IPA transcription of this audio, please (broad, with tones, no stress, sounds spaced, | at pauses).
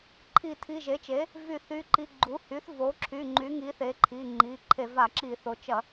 ǃʰ i˧˩˧ tʰ i˩˧˩ ʒ e˩˥ t͡ʃ e˩˥ | v y˧˩˧ θ y˩˧˩ ǃ i˩˧˩ ɡ͡ǃ u˩˥ h y˩˥ θ v o˩˥ ǁʰ y˩˧˩ ŋ͡ǃ y˩˥ ŋ i˩˥ θ e˩˥ ǃʰ i˩˧˩ ŋ͡ǃ i˩˧˩ ǃʰ e˧˩˧ v a˧˩˧ ǁ i˧˩˧ θ o˩˥ t͡ʃ ɐ˧˩˧